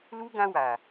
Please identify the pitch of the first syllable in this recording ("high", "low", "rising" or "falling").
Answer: high